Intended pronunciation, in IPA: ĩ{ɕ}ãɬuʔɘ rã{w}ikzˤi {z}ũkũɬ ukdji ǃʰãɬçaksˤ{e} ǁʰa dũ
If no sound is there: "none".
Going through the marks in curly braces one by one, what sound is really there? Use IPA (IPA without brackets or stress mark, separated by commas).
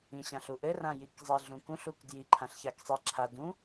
ɕ, j, ɮ, i